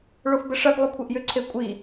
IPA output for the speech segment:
ɭ o f b ə ʂ ɐ ɡ lˠ ʏ kʷʰ e ʔ j ʏ ǀʰ e kʷʼ i

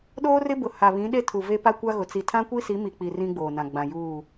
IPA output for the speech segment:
ɗ oː˦ r ɪ˦ b ʊ˨ h a˨ β ĩ˨˦ ɗ e˦ tʰ u˨ v e˦ p a˦ kʷ a˦ ɣ ʊ˨ t͡s i˨ tʰ ã˦ kʷ i˦ s i˨˦ m i˨ k͡p i˨ r ĩ˦ ɡ͡b oː˨ n ã˨ ɡ͡b ã˨ j uː˦˨

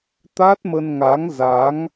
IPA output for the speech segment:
t̪ a˦˥ t̚ m ə˧ n ŋ a˨˦ ŋ z a˨˦ ŋ

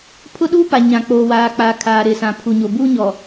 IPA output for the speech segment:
pʰ ʊ˦ ɗ uː˦ p a˨ ɲ ã˨ k͡p oː˨ w aː˨ k͡p a˨ kʰ aː˨ ɾ ɪ˨ s ã˨ pʰ u˨ ɲ o˨ b uː˦ ɲ ɔ˨

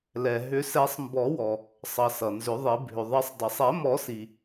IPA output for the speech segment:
l ɛ˩ ɦ ʏ˨˩˦ s ɛ˨˩˦ sˤ m b ɔ˨˩˦ w ɔ˩ | sˤ ʌ˩ s ʌ˩ n z ʏ˨˩˦ ðˤ i˨˩˦ bʱ ʏ˩ ðˤ ʌ˨˩˦ sˤ dˤ i˩ sˤ ɛ˨˩˦ m ɔ˨˩˦ s i˩

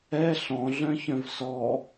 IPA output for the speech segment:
ɛ ɬ ɔ̃ ɮ œ̃ ç œ̃ v s ɔ

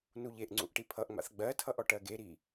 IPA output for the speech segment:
n u ʎ e ʔ ŋ͡ǀ ṵ ʔ ʈ i pʰ ʌ ʔ ŋ͡m a̰ θ ɡ͡b ɜ tʰ ʌ ʔ ɔ ʈ ɜ ɡ e ɾ i

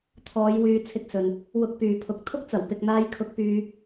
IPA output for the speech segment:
t̪ʰ ɔː˨˧ j w yː˨˧ t͡sʰ ɪ˧ k̚ s ɵ˨ n | w ʊ˧ k̚ p yː˨ pʰ ʊ˨ k̚ t̪ʰ ʊ˥ k̚ t͡s ɐ˨˩ w p ɪ˨ k̚ n̪ aː˧ j kʰ ʊ˧ k̚ p yː˧

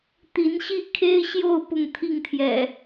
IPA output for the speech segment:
t̪ i˨˦ n ɕ i˥˨ kʰ e˦ ɪ̯ ɕ j o˥˨ ʊ̯ p ʊ˥˨ ŋ t̪ʰ i˥˨ ŋ t̪ʰ j ɛ̰˨˩

